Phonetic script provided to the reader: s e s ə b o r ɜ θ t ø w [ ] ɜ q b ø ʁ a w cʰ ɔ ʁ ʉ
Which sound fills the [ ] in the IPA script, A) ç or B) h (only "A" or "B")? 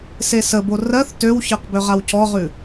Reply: A